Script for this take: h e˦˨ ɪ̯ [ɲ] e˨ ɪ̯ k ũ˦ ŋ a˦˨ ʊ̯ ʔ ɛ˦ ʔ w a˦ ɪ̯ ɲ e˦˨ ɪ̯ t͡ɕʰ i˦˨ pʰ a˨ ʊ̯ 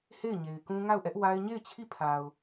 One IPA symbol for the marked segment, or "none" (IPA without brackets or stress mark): ɲ